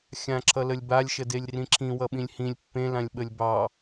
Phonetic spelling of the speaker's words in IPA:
xʲ ã ǁʰ ʌ l ə lʲ b a lʲ ʃ ə d e lʲ r ĩ ǁʰ ĩ w ʌ ɓ ĩ lʲ h ĩ lʲ pː ẽ l ã lʲ ɓ ə lʲ b ɑ

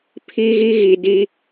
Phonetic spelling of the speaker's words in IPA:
pʰ i˧ ɣ i˧ ɣ i˨ d i˧

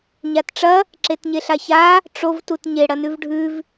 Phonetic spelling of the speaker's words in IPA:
ɲ a t ʈ͡ʂ ɐ | ǁ e t ɲ e ɬ a ç a | ʈ͡ʂ o v t u t ɲ e ɽ ɐ n ʉ v ɖʱ ʉ v

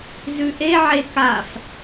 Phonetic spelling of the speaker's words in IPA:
z ʉ ʔ e ʕ e k a f

